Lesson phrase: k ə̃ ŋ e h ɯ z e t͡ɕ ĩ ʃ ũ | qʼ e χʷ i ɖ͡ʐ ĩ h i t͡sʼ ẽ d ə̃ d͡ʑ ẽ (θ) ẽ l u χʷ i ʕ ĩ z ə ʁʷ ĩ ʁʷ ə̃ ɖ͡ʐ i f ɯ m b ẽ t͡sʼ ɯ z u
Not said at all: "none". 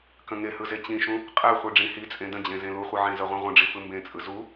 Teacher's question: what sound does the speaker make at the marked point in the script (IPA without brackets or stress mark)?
z